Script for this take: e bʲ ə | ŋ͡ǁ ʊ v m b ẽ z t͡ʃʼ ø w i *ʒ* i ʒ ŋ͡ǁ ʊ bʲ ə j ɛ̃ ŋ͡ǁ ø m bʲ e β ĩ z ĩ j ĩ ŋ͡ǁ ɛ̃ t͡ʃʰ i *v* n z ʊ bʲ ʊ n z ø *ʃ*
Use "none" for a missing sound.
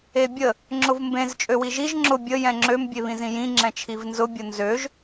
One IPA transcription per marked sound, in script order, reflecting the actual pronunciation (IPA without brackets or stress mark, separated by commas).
ʒ, v, ʒ